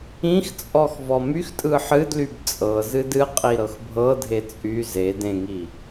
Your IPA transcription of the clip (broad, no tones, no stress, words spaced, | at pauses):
ĩxt͡sʼɔx vɔmyxtʼɯ ħɨdlyb t͡sʼɤzɨd ɨ qʼiɾɤxbʱɤdʱe t͡sʼy ze dẽŋi